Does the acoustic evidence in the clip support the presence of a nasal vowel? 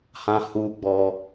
yes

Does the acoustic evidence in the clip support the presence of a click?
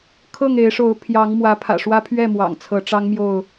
no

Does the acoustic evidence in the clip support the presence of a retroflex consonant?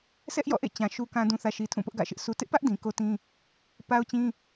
no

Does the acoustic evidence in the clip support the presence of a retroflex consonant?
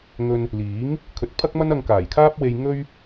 no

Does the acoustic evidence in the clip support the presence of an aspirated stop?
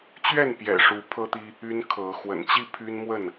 yes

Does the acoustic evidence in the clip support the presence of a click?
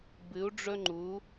yes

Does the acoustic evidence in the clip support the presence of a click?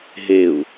no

